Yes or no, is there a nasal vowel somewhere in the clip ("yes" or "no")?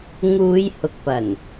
no